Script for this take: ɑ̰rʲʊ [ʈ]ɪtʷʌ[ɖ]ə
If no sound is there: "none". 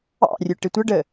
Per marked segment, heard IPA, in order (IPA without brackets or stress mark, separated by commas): ʈ, ɖ